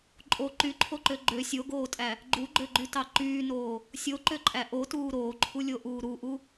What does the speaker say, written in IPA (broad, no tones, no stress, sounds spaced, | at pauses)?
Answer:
ǃʼ o ǃ y ǃʰ o ǃ ø ɡ͡ǃ ø sʲ o ɡ oː tʼ æ | ɡ͡ǃ u ɡ͡ǃ ø ɡ͡ǃ y t ɑ ǃ yː n oː | sʲ o ǃ ø ǃʼ æ ʔ o t uː ɾ oː ǃʰ u lʲ o ʔ uː ɾ u ʔ u